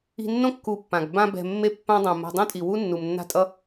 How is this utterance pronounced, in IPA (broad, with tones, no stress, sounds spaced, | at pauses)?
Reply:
i̤˧ nː õ˦ kː u˧ pː ã˨ ɡ b ã˧ b ɛ̤˨ mː e˦˨ pː ã˦ dˤ õ˨ m a̤˧ dˤ õ˦ tʼ i˨ w u˦ nː u˨ m nː a̤˦ tʼ ʌ˦